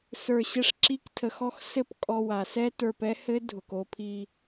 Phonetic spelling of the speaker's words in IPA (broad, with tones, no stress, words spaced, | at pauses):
sə˞˧ɕɘ˦ʂ ǁi˦ktʰə˧xɔ˦x sɘ˦˨pkʼɔ˧ wa˨sɛ˦ tə˞˧p ɛ˦hɘ˦ dʱʊ˨ko˧pʰi˧